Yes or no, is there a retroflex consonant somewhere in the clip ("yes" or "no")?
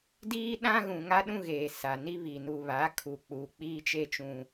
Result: no